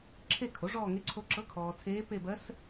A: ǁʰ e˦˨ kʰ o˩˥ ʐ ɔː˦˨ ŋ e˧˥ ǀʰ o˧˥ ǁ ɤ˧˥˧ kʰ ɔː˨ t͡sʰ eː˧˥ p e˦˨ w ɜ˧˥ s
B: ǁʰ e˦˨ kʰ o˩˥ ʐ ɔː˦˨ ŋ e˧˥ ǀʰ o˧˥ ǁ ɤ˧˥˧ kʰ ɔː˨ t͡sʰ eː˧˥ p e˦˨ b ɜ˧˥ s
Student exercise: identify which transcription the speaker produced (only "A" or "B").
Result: B